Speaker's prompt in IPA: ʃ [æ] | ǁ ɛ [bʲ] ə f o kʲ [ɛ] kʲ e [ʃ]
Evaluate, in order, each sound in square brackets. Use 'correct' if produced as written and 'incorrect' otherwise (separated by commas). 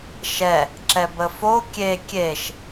incorrect, incorrect, incorrect, correct